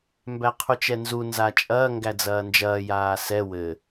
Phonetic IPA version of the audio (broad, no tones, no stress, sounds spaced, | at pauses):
m b æ qʰ u t͡ʃ ɛ n z u n z a t͡ʃʼ ɐː ŋ ɡ æ d͡z ɐː n d͡ʒ ɐː j aː s ɛ w ɘ